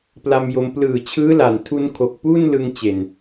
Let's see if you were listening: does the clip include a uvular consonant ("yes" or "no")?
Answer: no